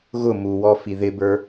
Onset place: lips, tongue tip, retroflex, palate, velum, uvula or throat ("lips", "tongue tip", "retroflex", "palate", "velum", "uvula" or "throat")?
velum